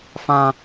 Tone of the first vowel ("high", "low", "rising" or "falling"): high